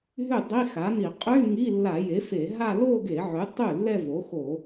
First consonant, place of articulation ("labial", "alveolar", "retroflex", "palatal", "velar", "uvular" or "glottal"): glottal